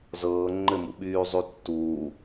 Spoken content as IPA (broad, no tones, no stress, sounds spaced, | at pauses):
z ɤː ŋ͡ǃ ɘ m ṵ ɓ yː zˤ y tː uː